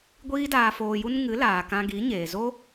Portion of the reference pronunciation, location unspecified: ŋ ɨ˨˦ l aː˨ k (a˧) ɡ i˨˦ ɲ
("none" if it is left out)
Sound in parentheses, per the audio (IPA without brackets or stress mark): ã˧